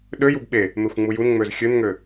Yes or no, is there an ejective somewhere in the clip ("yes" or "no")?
no